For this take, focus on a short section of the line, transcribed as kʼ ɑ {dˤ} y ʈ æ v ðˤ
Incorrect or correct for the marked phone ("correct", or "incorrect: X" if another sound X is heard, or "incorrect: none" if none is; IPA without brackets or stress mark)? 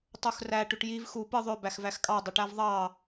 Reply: correct